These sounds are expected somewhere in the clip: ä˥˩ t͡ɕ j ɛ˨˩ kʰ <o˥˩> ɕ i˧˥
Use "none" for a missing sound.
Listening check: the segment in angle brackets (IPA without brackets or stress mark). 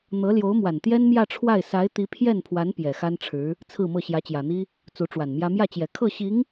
ɤ˥˩